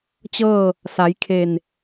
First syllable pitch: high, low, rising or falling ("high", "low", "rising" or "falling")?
falling